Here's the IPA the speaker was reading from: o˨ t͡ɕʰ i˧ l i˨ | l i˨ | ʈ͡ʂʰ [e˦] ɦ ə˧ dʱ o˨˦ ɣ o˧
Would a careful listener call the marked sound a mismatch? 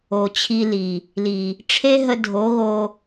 no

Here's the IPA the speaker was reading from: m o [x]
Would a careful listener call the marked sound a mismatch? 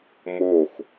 no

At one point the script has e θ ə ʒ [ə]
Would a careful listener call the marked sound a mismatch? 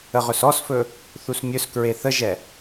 yes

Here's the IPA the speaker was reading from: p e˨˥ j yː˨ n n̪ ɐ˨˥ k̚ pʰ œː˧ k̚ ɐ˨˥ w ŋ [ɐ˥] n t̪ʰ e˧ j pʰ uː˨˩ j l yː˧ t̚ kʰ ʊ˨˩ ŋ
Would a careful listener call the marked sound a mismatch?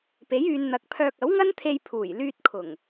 no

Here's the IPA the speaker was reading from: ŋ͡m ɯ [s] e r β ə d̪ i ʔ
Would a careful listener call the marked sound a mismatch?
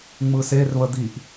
no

